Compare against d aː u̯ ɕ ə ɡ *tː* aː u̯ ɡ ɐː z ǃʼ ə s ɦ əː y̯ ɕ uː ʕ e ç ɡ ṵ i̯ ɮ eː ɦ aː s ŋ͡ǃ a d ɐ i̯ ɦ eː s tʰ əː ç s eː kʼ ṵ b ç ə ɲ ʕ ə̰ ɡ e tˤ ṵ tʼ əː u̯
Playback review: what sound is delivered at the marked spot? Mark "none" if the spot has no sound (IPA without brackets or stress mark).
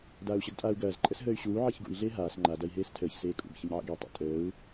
tʼ